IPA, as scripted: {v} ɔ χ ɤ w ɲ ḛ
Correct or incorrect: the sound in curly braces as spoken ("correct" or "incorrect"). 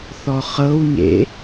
incorrect